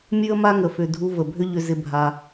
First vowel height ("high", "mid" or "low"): high